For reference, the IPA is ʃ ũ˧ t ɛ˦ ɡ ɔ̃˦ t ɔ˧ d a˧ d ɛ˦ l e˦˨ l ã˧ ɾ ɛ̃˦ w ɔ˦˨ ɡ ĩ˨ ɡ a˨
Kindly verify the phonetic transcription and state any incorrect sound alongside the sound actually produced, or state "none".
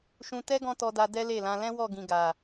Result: ɾ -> l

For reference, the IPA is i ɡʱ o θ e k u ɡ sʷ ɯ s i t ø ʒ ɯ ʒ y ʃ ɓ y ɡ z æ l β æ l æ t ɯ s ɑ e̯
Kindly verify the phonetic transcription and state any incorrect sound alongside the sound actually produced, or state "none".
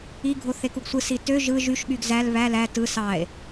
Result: none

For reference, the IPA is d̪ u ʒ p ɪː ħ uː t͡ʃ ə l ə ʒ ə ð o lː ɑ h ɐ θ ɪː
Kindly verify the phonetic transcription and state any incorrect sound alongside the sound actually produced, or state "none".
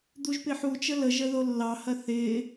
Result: none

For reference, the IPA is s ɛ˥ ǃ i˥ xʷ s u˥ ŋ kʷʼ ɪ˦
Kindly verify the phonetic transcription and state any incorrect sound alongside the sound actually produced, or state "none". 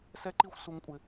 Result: none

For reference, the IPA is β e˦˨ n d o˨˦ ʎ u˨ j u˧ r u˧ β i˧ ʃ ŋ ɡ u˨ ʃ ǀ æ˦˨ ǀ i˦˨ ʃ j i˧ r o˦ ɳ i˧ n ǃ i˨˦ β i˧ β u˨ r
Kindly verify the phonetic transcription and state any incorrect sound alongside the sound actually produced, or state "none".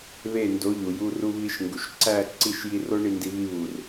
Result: ǃ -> d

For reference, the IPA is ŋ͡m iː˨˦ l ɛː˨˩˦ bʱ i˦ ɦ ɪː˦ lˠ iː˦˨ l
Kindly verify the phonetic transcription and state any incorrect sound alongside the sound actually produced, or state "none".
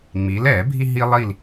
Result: ɪː˦ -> iː˦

